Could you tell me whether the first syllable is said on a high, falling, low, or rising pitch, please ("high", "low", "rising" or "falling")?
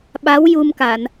rising